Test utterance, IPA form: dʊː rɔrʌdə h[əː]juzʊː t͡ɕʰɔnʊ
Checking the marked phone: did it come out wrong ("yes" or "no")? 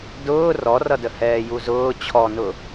yes